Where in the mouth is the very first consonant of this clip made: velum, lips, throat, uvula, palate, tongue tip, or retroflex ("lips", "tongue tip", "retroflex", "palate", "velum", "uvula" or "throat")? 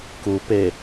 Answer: velum